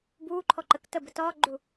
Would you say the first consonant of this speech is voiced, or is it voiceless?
voiced